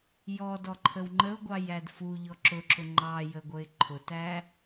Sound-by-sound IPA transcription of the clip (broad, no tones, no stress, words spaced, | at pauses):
jɔdɔǃʰəw ŋ͡ǃəʊ̯ɡʷɑjæd fuʎɔ ǁʊǁʊ ŋ͡ǃɑjəɡʷəɪ̯ ǃʰʊtæ